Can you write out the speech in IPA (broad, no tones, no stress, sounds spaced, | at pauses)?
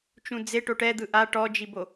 t͡ʃ ũ d͡z e ʈ o ʈ ɛ d̪ ɯ ʔ a ʈ ɔ d͡ʒ i b o